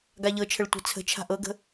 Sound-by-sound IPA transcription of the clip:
ɡaʎɤt͡ʃʰəɭ tʷɛ̤t͡sʰə̤t͡ʃʰa̤ ʔɤɡə̤

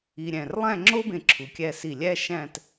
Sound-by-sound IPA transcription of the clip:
i˧ ɾʲæ̃˧˩rlˠæ̃˥˧ŋ͡ǁo˥bẽ˧˩ ǁʰu˩˧kʲæ˧si˧˩ lʲæ˥ʃæ̃˥˧t

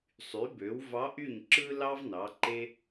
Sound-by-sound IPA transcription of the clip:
sˤy˩˥bø˩˥w vɑ˧˥ʔy˥˩ɲ ǁɯ˥ lɑ˥v nɑ˩˥ǃe˥

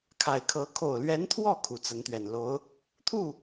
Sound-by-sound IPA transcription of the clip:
kʰa˨˩ɪ̯kʰɤ˧˥ kʰo˨˩ʊ̯lɥɛ˧˥nt̪ʰwɔ˥˩ kʰu˨˩t͡sə˧˥nt̪ɥɛ˨˩n lo˧˥ʊ̯ | t̪ʰu˥˩

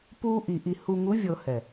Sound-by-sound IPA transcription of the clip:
puː˦ʔi˨ ʔi˨ hu˨ŋu˨˦vʲɤ˨ hɛ˨

